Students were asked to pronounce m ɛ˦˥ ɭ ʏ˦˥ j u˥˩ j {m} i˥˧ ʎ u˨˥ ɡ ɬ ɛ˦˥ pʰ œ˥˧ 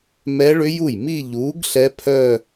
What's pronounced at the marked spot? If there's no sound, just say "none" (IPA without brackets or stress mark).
m